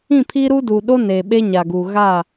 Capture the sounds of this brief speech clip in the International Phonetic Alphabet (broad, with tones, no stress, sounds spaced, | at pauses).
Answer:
ĩ˦˨ pʰ iː˦ ɾ uː˦ d uː˨ ɗ o˦ n eː˨ ɓ e˦ ɲ a˨ ɡ uː˨ ɣ a˦˨